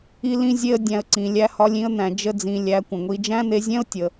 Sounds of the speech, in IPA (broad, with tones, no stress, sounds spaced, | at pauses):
i˦ l ĩ˦ zʲ e˦ ə̯ dʲ æ̃˧ ə̯ ǀ ĩ˨ lʲ æ˧ h ɒ˧ lʲ ĩ˧ ə̯ n̪ æ̃˨ d͡ʒ ə˦ d͡z ĩ˧ lʲ æ˧ kʷ ə̃˨ ŋʷ i˧ d͡ʒ æ̃˦ n̪ e˧ zʲ ɛ̃˦ ʊ̯ tʲ ə˨